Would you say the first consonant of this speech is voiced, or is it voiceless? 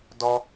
voiced